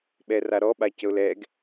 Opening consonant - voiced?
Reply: yes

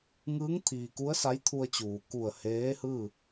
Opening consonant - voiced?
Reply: yes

